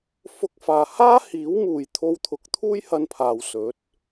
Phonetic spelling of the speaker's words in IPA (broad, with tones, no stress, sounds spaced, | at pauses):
f ʊ˥ k̚ f aː˧ h aː˥ h iː˨˥ w m uː˨ j t̪ʰ o˧ w t̪ʰ ʊ˨˥ k̚ t̪ʰ uː˥ j h ɐ˧ n pʰ aː˨ w s ɵ˨˥ t̚